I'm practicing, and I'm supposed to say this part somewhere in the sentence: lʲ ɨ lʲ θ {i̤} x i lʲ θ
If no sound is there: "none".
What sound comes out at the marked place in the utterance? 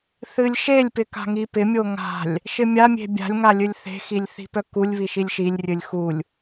e̤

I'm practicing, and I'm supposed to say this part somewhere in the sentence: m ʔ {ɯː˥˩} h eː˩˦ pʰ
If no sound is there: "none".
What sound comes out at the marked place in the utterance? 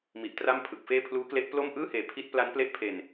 ɯː˥˩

